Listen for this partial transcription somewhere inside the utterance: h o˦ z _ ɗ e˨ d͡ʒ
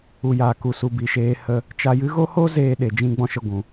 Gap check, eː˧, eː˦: eː˧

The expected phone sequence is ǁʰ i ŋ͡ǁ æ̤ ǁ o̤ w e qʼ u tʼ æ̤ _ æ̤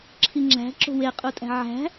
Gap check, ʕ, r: ʕ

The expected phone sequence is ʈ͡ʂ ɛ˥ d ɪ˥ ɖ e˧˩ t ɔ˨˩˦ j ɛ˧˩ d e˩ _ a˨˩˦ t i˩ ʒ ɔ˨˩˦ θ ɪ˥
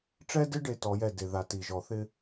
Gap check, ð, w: ð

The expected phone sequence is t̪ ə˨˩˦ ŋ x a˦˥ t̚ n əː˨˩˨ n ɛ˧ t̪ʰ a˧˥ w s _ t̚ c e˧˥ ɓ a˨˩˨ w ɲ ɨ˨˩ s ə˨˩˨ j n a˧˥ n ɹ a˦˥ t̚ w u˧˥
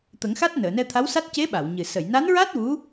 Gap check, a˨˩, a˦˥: a˦˥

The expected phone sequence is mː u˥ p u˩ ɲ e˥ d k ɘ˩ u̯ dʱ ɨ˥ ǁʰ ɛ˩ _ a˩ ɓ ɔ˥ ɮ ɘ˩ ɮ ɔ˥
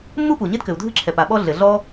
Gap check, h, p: p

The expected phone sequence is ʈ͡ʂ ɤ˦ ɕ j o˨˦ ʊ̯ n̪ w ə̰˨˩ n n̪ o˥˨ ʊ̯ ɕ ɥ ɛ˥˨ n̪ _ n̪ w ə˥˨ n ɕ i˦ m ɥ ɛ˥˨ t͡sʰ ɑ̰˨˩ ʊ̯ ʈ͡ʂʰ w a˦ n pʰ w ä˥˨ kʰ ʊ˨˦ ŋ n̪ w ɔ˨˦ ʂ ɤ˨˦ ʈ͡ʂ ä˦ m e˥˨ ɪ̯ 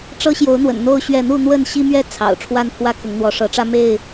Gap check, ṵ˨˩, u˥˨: u˥˨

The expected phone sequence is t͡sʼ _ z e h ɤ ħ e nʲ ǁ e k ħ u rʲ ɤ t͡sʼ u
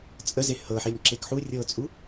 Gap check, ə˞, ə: ə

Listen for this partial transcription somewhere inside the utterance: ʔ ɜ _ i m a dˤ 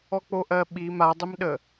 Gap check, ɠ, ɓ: ɓ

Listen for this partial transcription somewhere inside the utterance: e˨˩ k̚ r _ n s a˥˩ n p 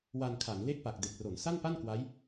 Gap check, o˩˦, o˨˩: o˩˦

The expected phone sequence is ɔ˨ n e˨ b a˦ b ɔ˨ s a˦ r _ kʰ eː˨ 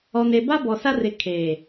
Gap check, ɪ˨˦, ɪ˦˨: ɪ˨˦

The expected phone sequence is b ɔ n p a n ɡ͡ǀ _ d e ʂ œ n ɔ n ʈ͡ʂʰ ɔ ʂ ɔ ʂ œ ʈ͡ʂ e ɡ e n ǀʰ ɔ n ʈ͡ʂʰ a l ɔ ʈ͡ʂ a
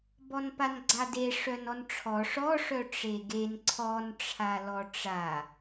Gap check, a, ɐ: a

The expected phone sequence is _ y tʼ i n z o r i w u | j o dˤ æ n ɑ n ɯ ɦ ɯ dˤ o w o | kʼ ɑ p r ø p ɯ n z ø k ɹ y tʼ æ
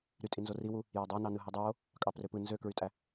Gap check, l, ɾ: ɾ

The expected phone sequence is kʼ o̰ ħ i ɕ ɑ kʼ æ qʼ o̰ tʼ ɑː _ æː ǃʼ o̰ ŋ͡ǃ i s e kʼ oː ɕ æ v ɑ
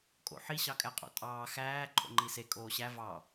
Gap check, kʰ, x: x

